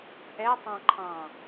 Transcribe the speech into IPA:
ʔ ɛ tˤ ɑ̃ ǃʰ ɑ̃

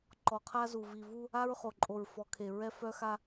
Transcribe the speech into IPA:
ǃ ɔ˨ qʰ a˦ z u˨ v i˨ v u˦ | a˦ ɹ χ o˨ ǃʼ o˨ ɹ f ɔ˨ kʰ e˨ ɹ ɛ˦ f œ˦ x a˦

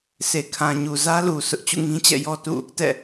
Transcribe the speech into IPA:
sʰ e˨ kʰ ã˨ ɲ u˨ z ä˦ l u˨ s ʊ˦ ʔ t͡ɕ ṵ˦˨ ŋ ĩ˦ t͡ɕ ɛ̰˦˨ j ɔ˦ t ṵ˦˨ | t ɛ̰˦˨

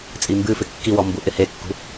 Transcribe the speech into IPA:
t͡sʼ i m b ɨ f ɪ kː i w ɔ m b u ʔ ɪ h e kː ṳ

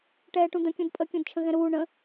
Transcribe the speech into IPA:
ʈ ɛː ʈ ũ d̪ ə̃ kʲ ũ d pʼ ə kʲ ũ d t͡ʃʰ ə̃ ɣ ɛ̃ ɾ uː ɳ ə̃

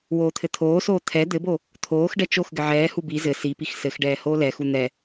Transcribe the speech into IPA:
w oː t̪ʰ ɘ t̪ʰ oː s oː t̪ʰ ɛ d̪ ɘ b o | t̪ʰ oː x ɖ ɛ t͡ʃ o x ɡ ɘ ʕ ɛː h u b i z ɘ s i p i x s ɘ x ɖ ɛː h oː l ɛ x u n̪ ɛ

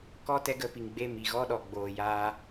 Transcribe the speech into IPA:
k ɔ˦ t ɛ˦ ɡ ə˧ p i˨ ŋ ɡ͡b e˦˨ m i˨ ɣ ɔ˦ ɗ ɔ˨ ɡ͡b oː˨ j aː˧

